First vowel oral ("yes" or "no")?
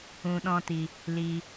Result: no